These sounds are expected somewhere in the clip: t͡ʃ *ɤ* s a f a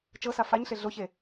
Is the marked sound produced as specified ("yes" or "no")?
yes